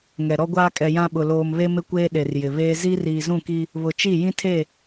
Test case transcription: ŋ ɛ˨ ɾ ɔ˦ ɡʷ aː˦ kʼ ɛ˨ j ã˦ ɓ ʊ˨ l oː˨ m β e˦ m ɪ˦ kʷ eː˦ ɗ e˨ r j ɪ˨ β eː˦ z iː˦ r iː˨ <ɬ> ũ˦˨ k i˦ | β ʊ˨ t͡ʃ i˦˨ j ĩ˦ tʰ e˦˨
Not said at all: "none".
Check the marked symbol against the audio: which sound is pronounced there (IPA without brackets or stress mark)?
z